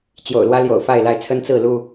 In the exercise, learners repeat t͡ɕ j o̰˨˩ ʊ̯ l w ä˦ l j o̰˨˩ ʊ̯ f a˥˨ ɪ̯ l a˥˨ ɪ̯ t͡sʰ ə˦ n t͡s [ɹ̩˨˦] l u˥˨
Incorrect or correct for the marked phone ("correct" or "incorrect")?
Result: incorrect